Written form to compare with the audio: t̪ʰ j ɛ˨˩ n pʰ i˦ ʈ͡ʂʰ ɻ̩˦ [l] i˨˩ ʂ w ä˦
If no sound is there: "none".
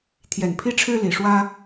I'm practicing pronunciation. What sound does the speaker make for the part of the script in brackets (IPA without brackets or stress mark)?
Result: l